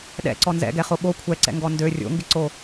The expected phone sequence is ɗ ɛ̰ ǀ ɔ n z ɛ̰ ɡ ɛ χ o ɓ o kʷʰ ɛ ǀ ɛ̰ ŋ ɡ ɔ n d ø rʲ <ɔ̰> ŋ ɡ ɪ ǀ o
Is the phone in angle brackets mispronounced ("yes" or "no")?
yes